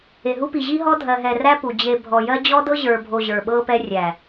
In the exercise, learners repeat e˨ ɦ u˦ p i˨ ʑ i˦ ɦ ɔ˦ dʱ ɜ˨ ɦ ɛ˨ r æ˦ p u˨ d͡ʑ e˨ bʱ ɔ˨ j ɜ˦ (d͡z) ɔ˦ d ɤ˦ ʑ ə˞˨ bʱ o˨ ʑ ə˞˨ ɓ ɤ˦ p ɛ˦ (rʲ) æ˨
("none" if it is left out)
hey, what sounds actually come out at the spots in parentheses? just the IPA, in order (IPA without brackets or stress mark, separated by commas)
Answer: d͡ʑ, rʲ